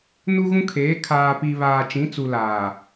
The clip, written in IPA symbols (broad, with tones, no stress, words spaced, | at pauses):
nu˦ɣũ˦kʰeː˨˦ kʰaː˨pi˨ βaː˨t͡ʃĩ˨˦t͡su˨ laː˨